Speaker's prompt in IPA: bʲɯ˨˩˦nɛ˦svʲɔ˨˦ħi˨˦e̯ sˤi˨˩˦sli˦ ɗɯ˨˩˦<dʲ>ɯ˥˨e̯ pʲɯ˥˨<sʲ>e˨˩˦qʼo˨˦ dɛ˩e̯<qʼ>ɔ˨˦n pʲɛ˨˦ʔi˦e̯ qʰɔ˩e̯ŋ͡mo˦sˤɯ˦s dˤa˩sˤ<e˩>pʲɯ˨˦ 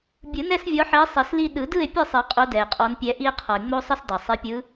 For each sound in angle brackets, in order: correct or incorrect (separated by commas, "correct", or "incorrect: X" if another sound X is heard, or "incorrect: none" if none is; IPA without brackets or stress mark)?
incorrect: d, incorrect: sˤ, correct, incorrect: e˨˦